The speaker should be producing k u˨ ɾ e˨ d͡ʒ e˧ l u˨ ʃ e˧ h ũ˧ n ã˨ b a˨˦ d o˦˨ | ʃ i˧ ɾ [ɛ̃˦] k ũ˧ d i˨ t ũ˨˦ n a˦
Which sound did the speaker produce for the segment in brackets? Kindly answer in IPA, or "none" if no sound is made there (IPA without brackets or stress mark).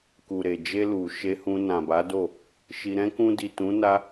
ɛ̃˦